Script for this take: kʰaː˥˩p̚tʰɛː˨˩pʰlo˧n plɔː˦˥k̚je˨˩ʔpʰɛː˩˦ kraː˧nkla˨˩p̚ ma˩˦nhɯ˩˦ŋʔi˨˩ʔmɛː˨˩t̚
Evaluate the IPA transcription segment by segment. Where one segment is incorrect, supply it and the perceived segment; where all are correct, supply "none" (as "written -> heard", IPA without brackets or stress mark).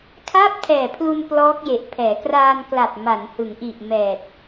o˧ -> u˧